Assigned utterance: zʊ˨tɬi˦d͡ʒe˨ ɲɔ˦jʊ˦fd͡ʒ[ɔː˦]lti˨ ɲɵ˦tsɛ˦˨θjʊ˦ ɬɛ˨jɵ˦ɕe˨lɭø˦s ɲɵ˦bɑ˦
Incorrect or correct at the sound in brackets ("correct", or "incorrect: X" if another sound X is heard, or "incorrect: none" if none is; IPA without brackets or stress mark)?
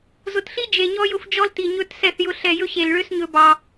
incorrect: ɔ˦